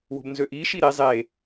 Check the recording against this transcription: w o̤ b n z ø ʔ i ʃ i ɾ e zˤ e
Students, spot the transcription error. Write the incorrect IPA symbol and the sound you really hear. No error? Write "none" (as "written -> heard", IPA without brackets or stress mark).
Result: none